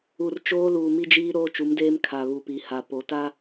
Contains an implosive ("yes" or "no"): no